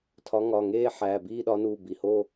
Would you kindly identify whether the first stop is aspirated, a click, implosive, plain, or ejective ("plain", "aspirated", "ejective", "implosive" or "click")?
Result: aspirated